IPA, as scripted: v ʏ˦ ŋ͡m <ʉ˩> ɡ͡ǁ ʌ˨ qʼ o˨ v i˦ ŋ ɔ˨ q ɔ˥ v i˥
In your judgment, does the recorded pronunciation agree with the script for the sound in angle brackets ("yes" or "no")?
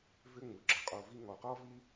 no